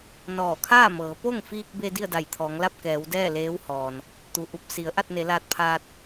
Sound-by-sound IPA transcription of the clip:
n ɔː˧˩ kʰ aː˥˨ m ɤː˩˧ p o˥˨ ŋ f iː˧ k̚ b e˧ d i˥˨ ə̯ d a˧˩ j t̪ʰ ɔː˩˧ ŋ l a˥˨ p̚ k ɛː˩˧ w d ɛː˥˨ l eː˧˥ w h ɔː˩ n | t̪ u˩ ʔ u˧˩ p̚ s i˩˧ ə̯ ʔ a˥˨ t̚ n e˩˧ l aː˧ t̚ pʰ aː˧ t̚

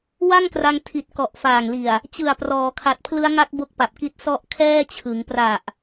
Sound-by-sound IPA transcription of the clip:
w a˥˩ ŋ k r a˧ ŋ tʰ i˨˩ t̚ k ɔ˨˩ ʔ f aː˨˩ ŋ l i˨˩ a̯ | t͡ɕ ɯ˨˩ a̯ p r ɔː˩˦ kʰ a˨˩ t̚ pʰ l ɯ˦˥ a̯ ŋ a˦˥ k̚ b o˦˥ k̚ p a˨˩ p̚ k i˦˥ t̚ s ɔ˦˥ ʔ kʰ ɛː˥˩ t͡ɕʰ ɯ˩˦ ŋ p r a˨˩ ʔ

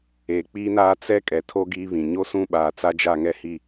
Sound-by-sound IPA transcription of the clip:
eː˨ k͡p iː˦ n aː˦ t͡s ɛ˦ kʼ ɛ˨ tʰ o˦ ɡ iː˦ β ĩ˨ ɲ o˦ s ũ˦˨ ɓ aː˨ t͡s a˦ d͡ʒ a˦˨ ŋ ɛ˦ h i˦˨

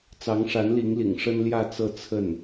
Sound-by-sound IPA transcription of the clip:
t͡s ɑ˧˥ ŋ ʂ a˧˥ n l i˧˥ ŋ l ḭ˨˩ ŋ ʂ ə˥ n l j ä˥˧ t͡s ɤ˥˧ t͡sʰ ə˥˩ n

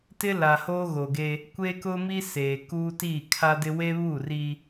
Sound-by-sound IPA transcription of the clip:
t ɪ˦ l a˨ h oː˦ ɣ o˨ ɡ e˦ | kʷ e˦ k ʊ˦ m i˦ s eː˨ k uː˦ t iː˦˨ kʰ a˦ d ɪ˦ w e˦ β uː˦˨ r iː˦

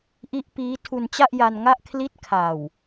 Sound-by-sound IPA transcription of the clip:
ʔ i˦˥ ʔ p iː˦˥ tʰ u˧ n t͡ɕ a˥˩ ʔ j a˧ n ŋ a˥˩ ʔ kʰ l i˦˥ t̚ kʰ a˨˩ w

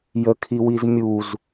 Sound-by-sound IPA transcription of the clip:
j ə kʰ i w i z mʲ u z

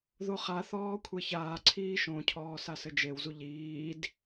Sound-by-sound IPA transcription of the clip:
ð o χ a θ ɔː kʷʰ e ç aː ǀʰ iː ʃ õ cʰ ɔː s a s ɘ d͡ʒ e w z u ʎ iː d

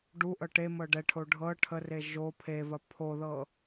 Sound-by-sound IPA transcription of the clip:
ɖ u ʔ ɤ ʈ e m ɤ ɖ ɛ ʈʰ o ɖʱ ɤ ʈʰ ə r e ʒ o pʰ e v ɐ pʰ o ð ɤ

